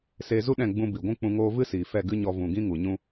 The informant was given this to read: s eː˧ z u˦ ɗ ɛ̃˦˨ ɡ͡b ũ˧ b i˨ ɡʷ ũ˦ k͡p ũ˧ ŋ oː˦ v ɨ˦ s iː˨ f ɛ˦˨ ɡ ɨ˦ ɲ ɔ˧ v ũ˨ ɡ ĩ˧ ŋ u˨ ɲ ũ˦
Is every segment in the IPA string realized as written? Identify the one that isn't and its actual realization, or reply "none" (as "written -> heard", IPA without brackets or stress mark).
none